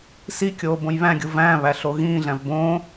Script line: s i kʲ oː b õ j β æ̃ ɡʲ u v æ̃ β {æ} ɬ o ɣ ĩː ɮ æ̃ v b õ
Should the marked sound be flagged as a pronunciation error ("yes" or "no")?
no